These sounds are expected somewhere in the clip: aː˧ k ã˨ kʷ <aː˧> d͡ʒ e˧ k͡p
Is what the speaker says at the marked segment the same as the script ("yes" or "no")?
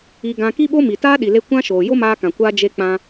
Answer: yes